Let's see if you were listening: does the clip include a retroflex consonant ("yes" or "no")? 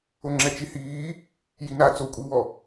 no